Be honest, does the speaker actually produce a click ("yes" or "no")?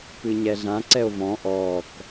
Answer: yes